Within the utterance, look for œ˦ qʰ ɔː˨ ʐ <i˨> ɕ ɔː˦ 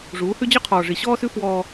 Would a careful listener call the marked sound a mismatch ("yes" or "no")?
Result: no